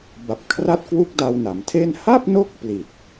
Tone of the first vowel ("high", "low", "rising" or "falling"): low